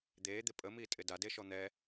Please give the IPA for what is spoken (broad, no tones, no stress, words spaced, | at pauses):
d̪eːd̪ɪ pʼəmiːtʼɪ dadeʃɔ n̪ɛ